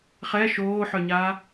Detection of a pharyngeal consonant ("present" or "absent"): present